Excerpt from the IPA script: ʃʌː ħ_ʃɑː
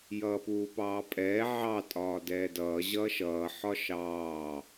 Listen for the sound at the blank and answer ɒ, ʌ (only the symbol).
ɒ